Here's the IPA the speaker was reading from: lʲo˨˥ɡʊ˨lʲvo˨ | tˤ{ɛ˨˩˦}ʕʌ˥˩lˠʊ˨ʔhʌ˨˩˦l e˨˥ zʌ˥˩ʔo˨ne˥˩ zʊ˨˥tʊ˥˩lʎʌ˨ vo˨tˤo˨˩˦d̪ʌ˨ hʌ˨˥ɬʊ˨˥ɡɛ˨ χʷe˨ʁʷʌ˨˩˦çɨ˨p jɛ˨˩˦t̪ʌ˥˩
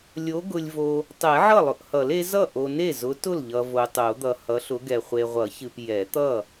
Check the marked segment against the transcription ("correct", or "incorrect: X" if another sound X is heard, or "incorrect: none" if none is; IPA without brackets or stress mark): correct